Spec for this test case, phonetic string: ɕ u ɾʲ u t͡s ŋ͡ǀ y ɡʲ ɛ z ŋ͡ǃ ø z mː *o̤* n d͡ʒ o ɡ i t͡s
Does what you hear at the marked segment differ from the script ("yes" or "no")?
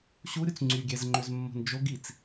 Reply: no